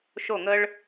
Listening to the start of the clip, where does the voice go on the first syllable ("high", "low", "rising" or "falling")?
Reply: falling